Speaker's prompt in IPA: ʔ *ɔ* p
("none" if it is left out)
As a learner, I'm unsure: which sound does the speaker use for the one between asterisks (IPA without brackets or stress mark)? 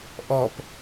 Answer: ɔ